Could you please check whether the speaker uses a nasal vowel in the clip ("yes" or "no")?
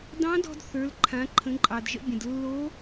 yes